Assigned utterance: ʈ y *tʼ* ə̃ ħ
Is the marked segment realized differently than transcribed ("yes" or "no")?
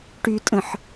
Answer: no